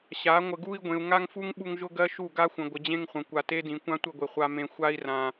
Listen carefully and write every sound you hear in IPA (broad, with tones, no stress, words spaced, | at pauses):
ɕa˨˦ ŋʷə˨ɡu˦i̯ɡʷẽ˨u̯ ŋa˦ŋfu˦ŋ ɓu˦ŋʒʊ˦ɡɜ˦ ʃu˦˨ɡa˦xʷə̃˨ ɡʷə˨d͡ʑẽ˦ŋχʷə̃˨ kʷa˨te˦dĩ˨ kʷã˦tʷə˦˨ɡʷe˨ χʷa˨mẽ˨ xʷa˦i̯rã˨